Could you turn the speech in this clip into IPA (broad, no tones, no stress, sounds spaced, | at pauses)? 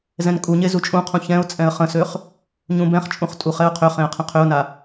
z ɛ̃ n kʼ u ɲ e z u t͡ʃʼ ũ qʰ ũ ç ɛ̃ ʊ̯ t͡sʼ ɛ̃ ə̯ χ ə̃ s ø χ | ɲ ũ b ɛ̃ χ t͡ʃʼ ũ χ tʼ u χ ɛ ʊ̯ qʰ ø χ ẽ ə̯ qʰ ə̃ qʰ ø ʊ̯ n a